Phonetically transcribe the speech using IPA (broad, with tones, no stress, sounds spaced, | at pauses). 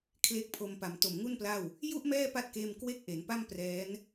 kʰ l e˦˥ k̚ pʰ o˧ m p a˨˩ m t o˨˩ m ŋ u˥˩ n p l a˥˩ w | j u˥˩ ʔ m ɛː˥˩ p a˦˥ t̚ k eː˧ m k w e˥˩ k̚ ʔ e˩˦ n p a˥˩ m p r ɛː˦˥ n